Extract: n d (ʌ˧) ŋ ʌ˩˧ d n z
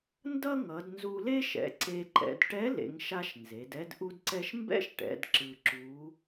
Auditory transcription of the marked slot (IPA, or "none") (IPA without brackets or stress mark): ʌ˥